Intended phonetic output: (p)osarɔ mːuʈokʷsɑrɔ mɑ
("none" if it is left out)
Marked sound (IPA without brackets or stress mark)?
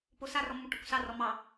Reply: p